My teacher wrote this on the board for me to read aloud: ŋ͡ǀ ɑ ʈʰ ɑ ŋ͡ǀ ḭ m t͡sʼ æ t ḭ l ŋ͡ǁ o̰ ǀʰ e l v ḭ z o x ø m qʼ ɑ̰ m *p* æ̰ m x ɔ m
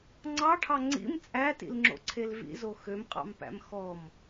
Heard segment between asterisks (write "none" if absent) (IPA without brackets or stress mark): p